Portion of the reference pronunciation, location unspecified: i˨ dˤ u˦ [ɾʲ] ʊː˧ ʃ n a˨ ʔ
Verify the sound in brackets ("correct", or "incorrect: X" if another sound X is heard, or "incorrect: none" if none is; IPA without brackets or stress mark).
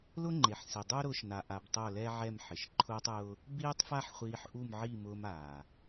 incorrect: ɾ